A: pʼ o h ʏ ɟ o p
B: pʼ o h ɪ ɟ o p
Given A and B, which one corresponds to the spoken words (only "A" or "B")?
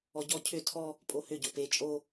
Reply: A